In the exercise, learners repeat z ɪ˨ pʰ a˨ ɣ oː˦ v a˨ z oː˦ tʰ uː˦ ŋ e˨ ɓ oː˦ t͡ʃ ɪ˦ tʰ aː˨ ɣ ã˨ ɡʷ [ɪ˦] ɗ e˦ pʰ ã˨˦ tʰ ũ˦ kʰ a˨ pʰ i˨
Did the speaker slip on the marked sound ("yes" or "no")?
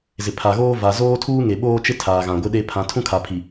no